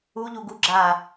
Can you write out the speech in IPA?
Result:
uʎu ɡu ɡ͡ǁa

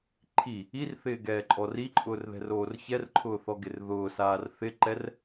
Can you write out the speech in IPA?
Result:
ǃʰi | irθɪːɡɛːǃʼɔr iǃʼʊːrðɛ̤roːr çɛrǃʰʊːθɔɡɪr ðʊːsaːr θɪǃɛr

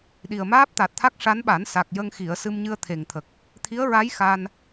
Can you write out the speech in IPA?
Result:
ɗi˨˩ə̯maː˦˥p̚t̪a˨˩t̚t̪ʰa˦˥k̚ ʂa˧˥nɓa˨˩˦n sa˨˩k̚jə˧ŋxi˨˩˨ə̯ sɨ˧mɲɨ˧ə̯ t̪ʰe˨˩ŋt̪ʰə˨˩k̚ | t̪ʰi˧˥ə̯ɹa˧˥j xa˧n

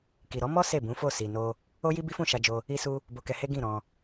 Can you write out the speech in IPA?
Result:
ki˨ ɾɔ˨˦mɔ˦ se˦˨bũ˨˦fo˦˨ si˨no˧ | o˦ji˦ bi˦fũ˦˨ʃa˧d͡ʒo˧ | i˧su˧ | bo˧kɛ˧he˦ ɡĩ˦˨ ɾɔ̃˧

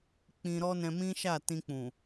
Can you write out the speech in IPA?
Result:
k͡pĩ˧ɾɔ˦ nɛ̃˧mĩ˦ʃa˦˨ tĩ˧k͡pũ˨

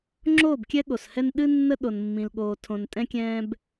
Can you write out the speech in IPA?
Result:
ŋ͡ǁoː˦˨bkʲɛ˦ɠo˨shɛ˦n ɗɨ˦ nːə˦ ɗo˨nmːĩ˨lɠoː˨ tʰõ˨n tʼɛ̃˦kʲɛ̃ː˦b

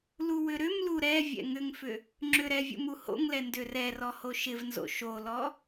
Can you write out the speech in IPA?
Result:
luwʏɾʏmlu ɾɛ vʲɛ̰ŋʏŋfʏ | ŋ͡ǁʏɾɛ vʲṵmuho̰ŋlɛ ndʏrɛrɔ hoʃɪvnzo̰ ʃolɔ

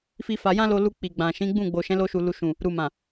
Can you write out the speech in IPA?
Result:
fi˦fa˧ jã˦lo˧lu˧ k͡pi˨ɡ͡bã˨ ʃĩ˨˦ɡ͡bũ˦˨ ɡ͡bo˨ʃɛ̃˨˦lo˧ʃu˨ lu˨ʃũ˨ | ɾu˨mã˨

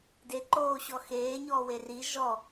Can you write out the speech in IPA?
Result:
deǃoːɕɔ xeːɲɔːwe ri ʒɔ

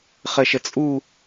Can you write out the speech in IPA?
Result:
χəʃət͡sʼu

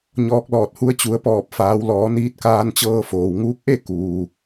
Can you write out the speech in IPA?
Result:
ɲɔː˧k̚lɔː˧˩t̚hu˧˥ə̯ t͡ɕu˩˧ə̯pɔː˧˩p̚faː˩˧w lɔː˩˧niː˧˥t̚kaː˧nt͡ɕɤː˧ foː˩wŋuː˧˥k̚ʔe˥˨ kuː˩

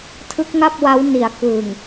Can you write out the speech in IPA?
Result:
tʰɯ˦˥k̚ŋa˥˩p̚wa˦˥wni˩˦a̯ kɯ˨˩ŋ

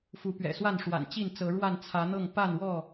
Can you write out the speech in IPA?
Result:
fu˨˦pɥɛ̰˨˩swa˥˨n ʂwa̰˨˩nt͡ɕi˥˨nt͡sɤ˨˦ɻwa˥˨n t͡sʰä˨˦n̪ɤ˥˨ŋ pa˥˨nwɔ˥˨

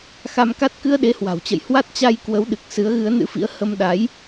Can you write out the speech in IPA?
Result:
xa˧mka˦˥t̚ kɨ˧ə̯ɗe˨˦hwa̤˨˩wt͡ɕə̰˧˨j hwa˦˥t̚t͡ɕa˧j kwə˨˦w ɗɨ˨˩k̚ sɨ˨˦ə̯ɣɨ˨˦ə̯nɨ̰˧˥fḭ˧˥ə̯ hə˧m ɗa˨˦j

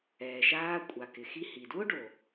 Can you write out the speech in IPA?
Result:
ɛː˩ʃaː˧ kʷʼa˩kɪ˩ xi˧hi˩dwʊ˥ɖo˩

